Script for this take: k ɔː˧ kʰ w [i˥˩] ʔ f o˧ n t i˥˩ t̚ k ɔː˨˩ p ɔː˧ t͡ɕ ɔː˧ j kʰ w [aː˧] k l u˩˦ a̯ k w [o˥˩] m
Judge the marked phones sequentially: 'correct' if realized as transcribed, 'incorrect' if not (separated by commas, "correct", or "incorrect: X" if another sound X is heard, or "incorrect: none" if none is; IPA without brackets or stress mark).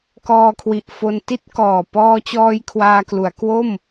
incorrect: i˨˩, correct, correct